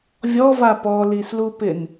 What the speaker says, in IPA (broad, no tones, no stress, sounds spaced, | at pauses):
vʲ ɔ v a p ɔ l i s l u p ɪ n